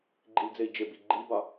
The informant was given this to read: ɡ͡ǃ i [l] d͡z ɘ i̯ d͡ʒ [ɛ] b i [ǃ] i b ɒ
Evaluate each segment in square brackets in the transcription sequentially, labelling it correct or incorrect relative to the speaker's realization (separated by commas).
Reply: correct, incorrect, incorrect